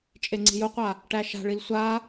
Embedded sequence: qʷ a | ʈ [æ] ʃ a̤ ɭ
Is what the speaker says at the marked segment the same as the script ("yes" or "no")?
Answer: yes